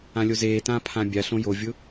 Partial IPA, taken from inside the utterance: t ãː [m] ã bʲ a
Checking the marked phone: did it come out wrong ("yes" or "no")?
yes